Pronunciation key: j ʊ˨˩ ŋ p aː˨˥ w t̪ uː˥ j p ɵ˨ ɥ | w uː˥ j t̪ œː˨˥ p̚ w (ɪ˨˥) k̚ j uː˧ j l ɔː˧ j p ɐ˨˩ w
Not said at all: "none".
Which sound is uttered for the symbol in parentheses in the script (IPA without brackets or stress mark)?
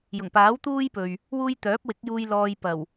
ɪ˨˥